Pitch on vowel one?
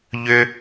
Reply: high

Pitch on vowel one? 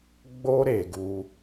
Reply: high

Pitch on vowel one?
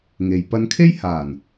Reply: low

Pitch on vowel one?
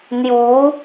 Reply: rising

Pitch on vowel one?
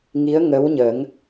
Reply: rising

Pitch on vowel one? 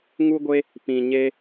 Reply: high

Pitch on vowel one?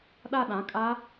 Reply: falling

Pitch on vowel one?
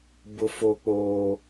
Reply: high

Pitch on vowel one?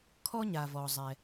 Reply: high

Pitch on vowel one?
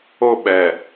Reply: high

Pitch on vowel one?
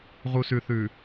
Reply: low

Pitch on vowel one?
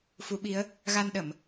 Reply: rising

